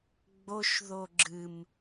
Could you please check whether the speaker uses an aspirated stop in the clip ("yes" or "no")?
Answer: no